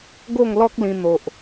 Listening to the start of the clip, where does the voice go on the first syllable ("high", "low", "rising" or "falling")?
falling